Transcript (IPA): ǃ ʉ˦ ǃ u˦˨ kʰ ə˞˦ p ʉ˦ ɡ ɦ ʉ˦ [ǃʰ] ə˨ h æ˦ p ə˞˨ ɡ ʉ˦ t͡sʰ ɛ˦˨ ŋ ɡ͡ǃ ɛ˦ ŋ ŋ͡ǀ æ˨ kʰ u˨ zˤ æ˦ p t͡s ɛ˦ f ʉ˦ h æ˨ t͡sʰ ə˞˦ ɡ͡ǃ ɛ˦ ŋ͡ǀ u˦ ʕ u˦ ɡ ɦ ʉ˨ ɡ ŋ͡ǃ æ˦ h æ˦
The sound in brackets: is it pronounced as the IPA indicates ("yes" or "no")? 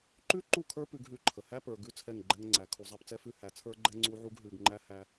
yes